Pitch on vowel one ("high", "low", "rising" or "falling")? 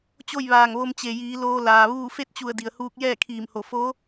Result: falling